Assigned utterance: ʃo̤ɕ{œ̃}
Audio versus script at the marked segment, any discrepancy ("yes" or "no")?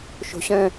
no